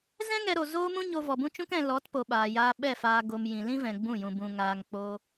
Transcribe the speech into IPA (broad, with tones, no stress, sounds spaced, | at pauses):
z ɛ̃˦ ŋ ɛ˧ ɾ o˨ z oː˦ m ũ˦ ɲ o˧ v ɔ˨ b ũ˦ t͡ʃ ũ˦ k ɛ̃˧ l ɔ˨˦ t p o˨ ɓ aː˨ j aː˧ ɓ ɛ˦˨ f aː˧ ɡ o˧ m j ĩ˨ l ĩ˦ v ɛ̃˨ ɡ͡b ũ˦˨ j ũ˧ b ũ˧ ŋ aː˧ ŋ k͡p o˦